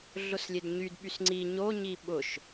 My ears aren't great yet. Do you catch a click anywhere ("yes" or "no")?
yes